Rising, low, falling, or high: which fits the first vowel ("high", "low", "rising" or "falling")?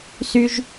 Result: high